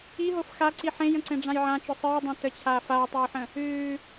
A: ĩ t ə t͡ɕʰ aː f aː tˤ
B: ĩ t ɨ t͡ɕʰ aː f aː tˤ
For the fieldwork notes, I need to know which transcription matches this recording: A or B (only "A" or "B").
A